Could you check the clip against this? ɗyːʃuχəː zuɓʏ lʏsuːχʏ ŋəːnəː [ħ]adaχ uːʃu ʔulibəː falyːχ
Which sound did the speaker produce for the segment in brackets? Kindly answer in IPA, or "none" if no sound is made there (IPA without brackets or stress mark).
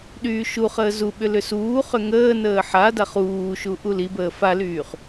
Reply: ħ